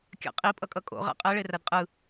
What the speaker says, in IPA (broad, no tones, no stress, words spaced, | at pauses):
kʲa̰qʼi pʼʌkʼʌkʼo̰ ʁa̰qʼɛ ɭeradqʼɯ